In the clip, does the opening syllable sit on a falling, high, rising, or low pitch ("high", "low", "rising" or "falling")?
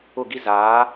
falling